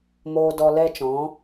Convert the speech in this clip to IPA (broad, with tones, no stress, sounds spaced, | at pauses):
m oː˦ d ɔ˧ l ɛ˦ t͡ʃ ɔ̃˨˦